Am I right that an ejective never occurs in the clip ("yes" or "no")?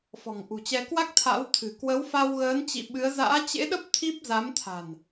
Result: yes